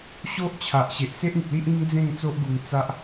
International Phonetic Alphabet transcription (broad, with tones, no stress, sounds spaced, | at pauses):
ɕ o˦ ʔ t͡ɕʰ a˨ ʔ ɕ e˨ ʔ s e˦ ʔ ĩ˨ p̚ l i˦ ʔ ĩ˦ ŋ d͡z ẽ˥˧ ŋ t͡s o˦ ʔ ɡ u˧ ŋ t͡s a˦ ʔ